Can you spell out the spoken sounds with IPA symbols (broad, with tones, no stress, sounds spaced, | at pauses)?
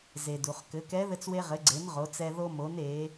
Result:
z e˩ d u˩ χ k ɘ˩˧ k ɛ˧˥ ð ɘ˧ t͡s w e˧ ʁ ɘ˩˧ ɡ͡ǀ e˩˧ n ʁ o˩˧ t͡s ɛ˧ ð o˧ m o˩˧ n e˩˧